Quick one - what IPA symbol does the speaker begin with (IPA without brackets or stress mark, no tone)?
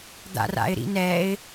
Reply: d̪